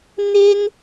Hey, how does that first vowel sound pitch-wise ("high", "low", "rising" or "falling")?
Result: high